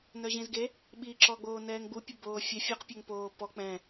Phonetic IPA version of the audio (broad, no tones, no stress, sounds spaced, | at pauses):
n œ ʑ ĩ z ɡ e | ɓ i ǁ ɔ ɡ͡b oː n ɛː ŋ ɡ͡b u pʲ ə b oː fʲ ɛ fʲ ɔ q pʲ œ ŋ p oː p ɔ k͡p ɛ̃